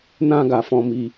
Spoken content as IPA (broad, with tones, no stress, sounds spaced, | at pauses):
n ã˧ ɡ a˨ f ɔ̃˧ m i˧